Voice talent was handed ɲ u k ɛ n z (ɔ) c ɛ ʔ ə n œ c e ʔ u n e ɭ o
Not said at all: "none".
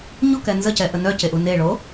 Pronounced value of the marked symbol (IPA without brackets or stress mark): ə